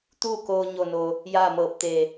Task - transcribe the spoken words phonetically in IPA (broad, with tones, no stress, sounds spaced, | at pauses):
t̪ uː˥˨ k oː˧ ɲ o˧˩ n o˩ | j aː˥˨ m ɤː˧˩ p̚ t̪ e˧˩